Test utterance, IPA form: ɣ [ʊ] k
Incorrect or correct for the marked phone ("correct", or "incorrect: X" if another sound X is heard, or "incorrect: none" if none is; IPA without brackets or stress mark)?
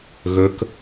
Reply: incorrect: ɵ